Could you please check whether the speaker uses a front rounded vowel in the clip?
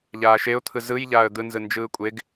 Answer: no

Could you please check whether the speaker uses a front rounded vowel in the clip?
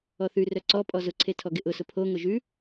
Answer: yes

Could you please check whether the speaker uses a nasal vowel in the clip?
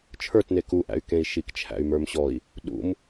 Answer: yes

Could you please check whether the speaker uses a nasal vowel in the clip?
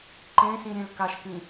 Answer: yes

